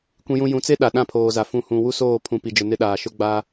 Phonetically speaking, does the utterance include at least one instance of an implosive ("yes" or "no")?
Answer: yes